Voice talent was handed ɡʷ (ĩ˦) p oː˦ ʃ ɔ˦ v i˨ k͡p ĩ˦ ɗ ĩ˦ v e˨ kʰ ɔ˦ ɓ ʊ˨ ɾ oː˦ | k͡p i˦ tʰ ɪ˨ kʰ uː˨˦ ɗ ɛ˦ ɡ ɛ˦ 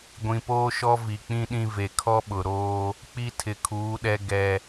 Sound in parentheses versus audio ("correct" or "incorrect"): incorrect